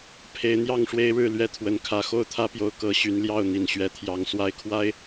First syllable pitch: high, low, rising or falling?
rising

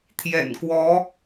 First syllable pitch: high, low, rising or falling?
low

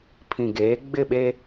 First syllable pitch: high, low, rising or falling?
low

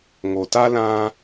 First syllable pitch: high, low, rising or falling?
low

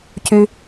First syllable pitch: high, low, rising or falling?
low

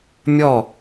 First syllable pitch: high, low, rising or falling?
falling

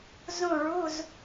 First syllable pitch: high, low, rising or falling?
falling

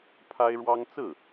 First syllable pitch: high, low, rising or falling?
high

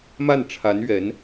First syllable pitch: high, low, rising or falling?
falling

